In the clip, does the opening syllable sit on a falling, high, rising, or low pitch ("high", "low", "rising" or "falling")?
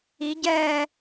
rising